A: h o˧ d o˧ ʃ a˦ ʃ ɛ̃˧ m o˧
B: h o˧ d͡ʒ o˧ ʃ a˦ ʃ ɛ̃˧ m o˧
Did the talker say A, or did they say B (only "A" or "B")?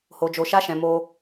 B